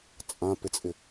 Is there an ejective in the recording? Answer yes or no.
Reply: yes